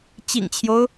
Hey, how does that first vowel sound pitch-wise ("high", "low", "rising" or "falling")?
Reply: low